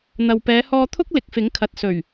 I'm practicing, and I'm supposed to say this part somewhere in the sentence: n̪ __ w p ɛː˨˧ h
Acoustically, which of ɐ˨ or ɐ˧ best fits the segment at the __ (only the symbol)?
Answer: ɐ˨